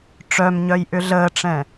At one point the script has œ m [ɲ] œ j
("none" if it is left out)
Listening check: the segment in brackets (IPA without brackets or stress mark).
ɲ